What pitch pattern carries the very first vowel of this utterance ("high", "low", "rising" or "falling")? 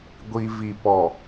low